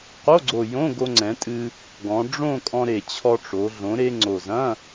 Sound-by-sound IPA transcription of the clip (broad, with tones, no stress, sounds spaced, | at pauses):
q o˧˥˧ ɡ͡ǀ o˨˩ j õ˧˥˧ ɡ o˧ ŋ͡ǀ ɛ̃˩˧ tʼ ɨ˧ | ɡ ɔ̃˩˧ ɖ͡ʐ õ˥˧ kʼ ɔ̃˧ ɾ e˨˩ t͡ɕʰ ɔ˧ ʈ͡ʂ o˩˧ ɮ õ˩˧ ɾ e˧ ŋ͡ǀ o˨˩ z ɐ̃˧˥˧